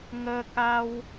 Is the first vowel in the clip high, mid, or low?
mid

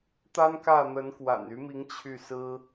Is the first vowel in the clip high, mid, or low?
low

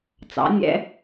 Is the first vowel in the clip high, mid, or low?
low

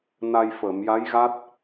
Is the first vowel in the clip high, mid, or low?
low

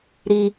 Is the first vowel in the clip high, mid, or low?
high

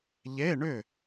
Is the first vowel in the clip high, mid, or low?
mid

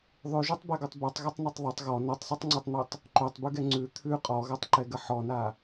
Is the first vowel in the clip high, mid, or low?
high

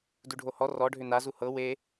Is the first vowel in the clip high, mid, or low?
high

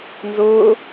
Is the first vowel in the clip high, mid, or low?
high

